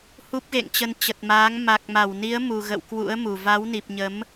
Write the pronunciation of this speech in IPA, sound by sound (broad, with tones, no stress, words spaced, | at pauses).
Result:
hu˦˥p̚ɣḛ˧˨ŋt͡ɕə˧n t͡ɕə˨˩t̚maː˨˦ŋ ma˨˩k̚ma˧˩wni˨˦ə̯ mu˨˩ɣə̰˧˨w kwṵ˧˥ə̯mu˨˩ va˨˦wni˨˩p̚ɲə˨˦m